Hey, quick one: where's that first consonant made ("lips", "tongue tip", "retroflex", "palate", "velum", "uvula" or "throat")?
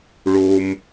retroflex